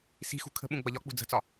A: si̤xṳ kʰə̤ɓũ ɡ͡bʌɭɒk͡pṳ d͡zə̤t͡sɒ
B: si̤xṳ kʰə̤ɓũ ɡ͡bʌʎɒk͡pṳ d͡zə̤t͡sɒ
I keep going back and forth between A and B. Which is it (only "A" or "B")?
B